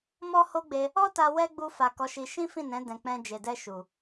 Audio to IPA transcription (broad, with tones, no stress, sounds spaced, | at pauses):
m ɔ˦ h o˦ ɡ͡b e˧ | ɔ˦ t a˧ w ɛ˦ ɡ͡b u˧ f a˨ k ɔ˨˦ ʃ i˧ ʃ ĩ˦ f ĩ˦˨ n ɛ̃˨˦ d ɛ̃˧ k͡p ɛ̃˧ d͡ʒ e˨ d ɛ˧ ʃ u˨